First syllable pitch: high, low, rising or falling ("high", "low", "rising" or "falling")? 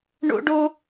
high